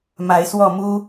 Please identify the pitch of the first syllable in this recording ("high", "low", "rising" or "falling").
rising